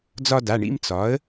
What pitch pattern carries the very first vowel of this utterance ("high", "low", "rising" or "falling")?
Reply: high